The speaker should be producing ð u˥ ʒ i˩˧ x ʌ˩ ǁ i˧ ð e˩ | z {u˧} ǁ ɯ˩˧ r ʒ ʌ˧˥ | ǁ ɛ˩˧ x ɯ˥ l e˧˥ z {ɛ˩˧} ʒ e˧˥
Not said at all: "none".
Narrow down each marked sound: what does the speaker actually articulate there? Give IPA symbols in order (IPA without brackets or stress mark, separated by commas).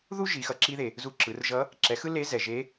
u˧, ɛ˩